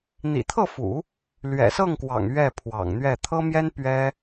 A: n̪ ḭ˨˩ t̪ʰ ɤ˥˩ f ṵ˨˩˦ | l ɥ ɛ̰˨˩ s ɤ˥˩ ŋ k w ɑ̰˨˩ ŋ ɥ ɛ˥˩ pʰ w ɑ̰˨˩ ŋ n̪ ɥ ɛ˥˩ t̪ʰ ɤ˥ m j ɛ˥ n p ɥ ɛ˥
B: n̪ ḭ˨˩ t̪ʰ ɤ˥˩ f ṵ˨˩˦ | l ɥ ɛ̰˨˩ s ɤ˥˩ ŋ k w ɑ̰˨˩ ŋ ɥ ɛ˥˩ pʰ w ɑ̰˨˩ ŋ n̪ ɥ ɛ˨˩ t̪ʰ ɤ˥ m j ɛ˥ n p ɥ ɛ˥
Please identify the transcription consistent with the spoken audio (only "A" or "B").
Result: A